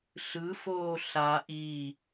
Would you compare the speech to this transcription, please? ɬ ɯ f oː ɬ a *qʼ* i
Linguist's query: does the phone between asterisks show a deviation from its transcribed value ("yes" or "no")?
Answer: yes